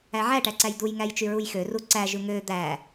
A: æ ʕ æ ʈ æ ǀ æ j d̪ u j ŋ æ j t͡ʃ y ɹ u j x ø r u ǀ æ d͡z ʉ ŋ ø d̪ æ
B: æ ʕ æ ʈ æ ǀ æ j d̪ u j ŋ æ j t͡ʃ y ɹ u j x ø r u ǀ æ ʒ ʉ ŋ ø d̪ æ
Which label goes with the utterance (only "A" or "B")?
B